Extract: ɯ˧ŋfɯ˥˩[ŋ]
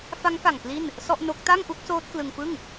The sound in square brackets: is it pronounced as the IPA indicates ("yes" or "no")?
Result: yes